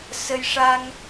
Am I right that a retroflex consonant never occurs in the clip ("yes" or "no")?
no